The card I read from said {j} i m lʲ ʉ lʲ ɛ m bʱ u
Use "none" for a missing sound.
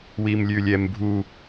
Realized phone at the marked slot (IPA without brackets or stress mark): w